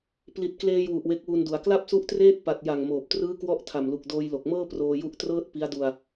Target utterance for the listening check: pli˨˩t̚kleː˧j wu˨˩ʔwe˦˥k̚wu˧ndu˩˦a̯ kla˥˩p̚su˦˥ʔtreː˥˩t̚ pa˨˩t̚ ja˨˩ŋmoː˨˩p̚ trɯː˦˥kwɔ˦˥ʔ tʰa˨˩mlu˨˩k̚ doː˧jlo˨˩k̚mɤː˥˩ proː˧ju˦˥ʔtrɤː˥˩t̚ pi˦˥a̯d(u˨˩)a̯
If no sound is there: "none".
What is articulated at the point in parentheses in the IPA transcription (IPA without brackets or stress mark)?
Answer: u˧